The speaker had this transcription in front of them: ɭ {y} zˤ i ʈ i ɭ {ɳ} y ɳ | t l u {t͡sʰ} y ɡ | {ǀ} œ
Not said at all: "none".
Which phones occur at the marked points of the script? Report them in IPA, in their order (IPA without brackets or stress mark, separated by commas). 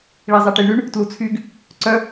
i, ɳ, t͡sʰ, ǀ